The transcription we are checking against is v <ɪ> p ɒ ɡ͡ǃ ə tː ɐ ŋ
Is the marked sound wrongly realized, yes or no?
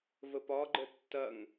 yes